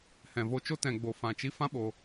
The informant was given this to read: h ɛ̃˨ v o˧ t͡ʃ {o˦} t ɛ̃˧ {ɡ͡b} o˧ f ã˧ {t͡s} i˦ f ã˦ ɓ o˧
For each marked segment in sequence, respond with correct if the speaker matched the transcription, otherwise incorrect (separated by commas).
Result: correct, correct, incorrect